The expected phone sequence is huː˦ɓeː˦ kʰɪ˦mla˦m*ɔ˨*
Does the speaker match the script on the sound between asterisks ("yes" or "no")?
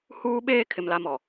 yes